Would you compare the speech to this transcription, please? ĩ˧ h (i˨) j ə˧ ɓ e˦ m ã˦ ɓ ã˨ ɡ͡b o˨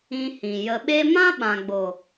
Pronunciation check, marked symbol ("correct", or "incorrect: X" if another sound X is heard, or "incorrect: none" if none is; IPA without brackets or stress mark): incorrect: ĩ˨